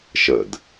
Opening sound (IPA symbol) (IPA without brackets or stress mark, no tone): ʃ